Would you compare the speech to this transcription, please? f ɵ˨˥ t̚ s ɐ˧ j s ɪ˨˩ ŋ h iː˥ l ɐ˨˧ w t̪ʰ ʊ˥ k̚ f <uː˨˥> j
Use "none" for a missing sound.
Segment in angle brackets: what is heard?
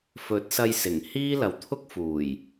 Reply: uː˨˩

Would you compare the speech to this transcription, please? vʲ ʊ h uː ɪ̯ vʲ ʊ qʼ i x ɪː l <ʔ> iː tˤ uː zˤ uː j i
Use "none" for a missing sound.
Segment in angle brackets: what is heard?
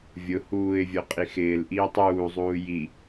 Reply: ʔ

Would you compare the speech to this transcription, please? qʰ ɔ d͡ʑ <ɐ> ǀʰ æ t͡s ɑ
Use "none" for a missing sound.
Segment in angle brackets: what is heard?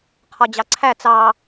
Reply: ɑ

